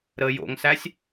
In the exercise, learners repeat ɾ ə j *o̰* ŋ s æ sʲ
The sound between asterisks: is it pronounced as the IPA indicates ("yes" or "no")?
yes